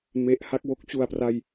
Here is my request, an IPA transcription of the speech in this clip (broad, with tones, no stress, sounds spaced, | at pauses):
m e˦˥ ʔ h a˥˩ k̚ w o˦˥ k̚ t͡ɕ u˨˩ a̯ p r a˧ j